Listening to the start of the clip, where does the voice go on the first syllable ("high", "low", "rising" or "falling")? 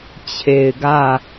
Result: low